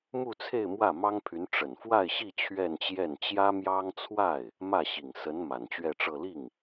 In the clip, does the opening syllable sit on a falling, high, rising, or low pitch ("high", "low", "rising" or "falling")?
falling